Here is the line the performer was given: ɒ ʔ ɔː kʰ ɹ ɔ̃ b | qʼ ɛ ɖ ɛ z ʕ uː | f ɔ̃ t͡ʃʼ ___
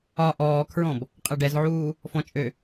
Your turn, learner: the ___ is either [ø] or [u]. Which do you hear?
ø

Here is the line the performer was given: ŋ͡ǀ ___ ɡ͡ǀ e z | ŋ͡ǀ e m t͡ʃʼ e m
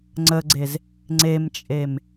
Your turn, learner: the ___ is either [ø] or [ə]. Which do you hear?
ə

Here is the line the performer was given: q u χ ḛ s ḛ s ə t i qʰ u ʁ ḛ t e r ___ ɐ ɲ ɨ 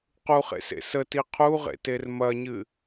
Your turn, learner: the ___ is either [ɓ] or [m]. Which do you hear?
m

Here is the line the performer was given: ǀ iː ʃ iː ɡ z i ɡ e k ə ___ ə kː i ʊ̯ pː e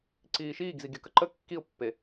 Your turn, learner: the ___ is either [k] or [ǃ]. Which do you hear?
ǃ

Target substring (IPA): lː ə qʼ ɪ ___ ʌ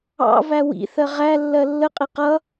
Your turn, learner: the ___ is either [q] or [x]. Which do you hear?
q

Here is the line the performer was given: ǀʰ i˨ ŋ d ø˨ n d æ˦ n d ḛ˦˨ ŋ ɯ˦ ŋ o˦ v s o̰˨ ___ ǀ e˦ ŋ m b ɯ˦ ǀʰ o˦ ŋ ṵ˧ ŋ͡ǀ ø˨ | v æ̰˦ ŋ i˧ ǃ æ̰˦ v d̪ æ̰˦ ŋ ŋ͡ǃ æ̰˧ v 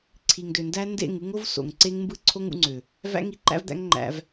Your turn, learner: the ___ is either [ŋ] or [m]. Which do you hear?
ŋ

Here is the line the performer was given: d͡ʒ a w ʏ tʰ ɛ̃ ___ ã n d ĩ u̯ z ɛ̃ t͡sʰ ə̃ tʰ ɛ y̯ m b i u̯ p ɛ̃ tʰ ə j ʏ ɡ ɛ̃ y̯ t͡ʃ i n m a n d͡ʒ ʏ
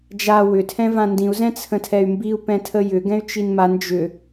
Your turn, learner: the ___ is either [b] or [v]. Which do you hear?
v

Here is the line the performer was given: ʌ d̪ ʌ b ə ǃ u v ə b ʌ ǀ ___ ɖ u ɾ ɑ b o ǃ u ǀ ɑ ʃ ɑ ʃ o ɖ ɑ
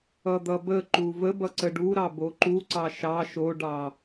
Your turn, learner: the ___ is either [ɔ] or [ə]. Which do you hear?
ə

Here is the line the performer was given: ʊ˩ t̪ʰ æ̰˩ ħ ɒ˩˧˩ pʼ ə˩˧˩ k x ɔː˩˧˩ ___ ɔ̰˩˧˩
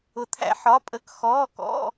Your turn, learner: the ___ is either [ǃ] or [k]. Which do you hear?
k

